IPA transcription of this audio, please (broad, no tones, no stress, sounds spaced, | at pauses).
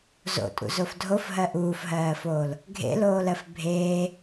z o̰ tʼ ṵ z o f dʱ o f ɦ ɜ ʔ uː f ɦ ɜː f oː l | ɡʱ ḛ l oː l ɜ f bʱ eː